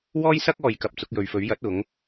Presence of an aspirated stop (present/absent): absent